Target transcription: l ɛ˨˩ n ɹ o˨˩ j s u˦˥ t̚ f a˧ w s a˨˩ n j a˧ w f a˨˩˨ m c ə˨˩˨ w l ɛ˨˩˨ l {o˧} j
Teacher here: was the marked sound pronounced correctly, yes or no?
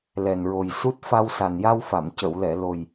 no